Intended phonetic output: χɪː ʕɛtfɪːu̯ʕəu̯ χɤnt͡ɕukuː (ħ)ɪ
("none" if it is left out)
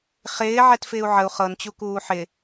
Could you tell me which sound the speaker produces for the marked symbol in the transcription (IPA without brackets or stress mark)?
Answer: ħ